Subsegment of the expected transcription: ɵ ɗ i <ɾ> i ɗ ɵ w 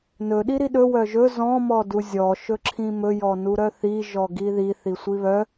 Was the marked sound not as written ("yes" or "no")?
no